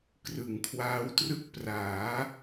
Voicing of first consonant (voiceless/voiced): voiceless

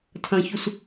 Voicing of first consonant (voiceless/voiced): voiceless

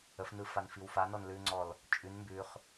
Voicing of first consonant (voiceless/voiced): voiceless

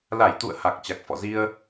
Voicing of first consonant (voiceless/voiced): voiced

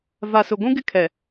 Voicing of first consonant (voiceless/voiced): voiced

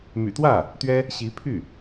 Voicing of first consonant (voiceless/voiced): voiced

